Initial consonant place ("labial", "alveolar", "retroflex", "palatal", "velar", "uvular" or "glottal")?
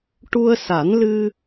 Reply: retroflex